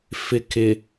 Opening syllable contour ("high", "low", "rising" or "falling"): low